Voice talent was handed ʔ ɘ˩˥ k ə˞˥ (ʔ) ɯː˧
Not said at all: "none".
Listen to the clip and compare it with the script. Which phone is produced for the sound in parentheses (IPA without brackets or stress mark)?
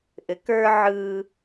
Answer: ʕ